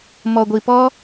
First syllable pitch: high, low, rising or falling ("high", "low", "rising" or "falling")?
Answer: low